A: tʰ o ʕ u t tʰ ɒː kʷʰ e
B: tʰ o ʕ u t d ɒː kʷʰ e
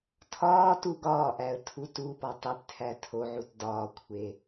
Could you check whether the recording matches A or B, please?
B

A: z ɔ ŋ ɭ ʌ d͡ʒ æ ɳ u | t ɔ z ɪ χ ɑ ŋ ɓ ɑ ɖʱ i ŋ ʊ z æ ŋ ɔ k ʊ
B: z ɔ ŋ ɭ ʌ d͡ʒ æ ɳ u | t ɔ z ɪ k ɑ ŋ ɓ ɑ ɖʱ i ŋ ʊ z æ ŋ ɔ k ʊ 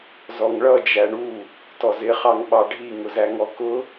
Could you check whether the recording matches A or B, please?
A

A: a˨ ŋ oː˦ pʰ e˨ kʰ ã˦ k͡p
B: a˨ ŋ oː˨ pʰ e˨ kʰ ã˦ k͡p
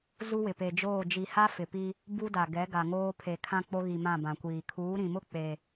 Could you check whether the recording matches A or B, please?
A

